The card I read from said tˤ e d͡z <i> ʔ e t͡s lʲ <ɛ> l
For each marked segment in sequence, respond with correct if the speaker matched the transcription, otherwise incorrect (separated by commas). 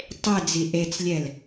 correct, correct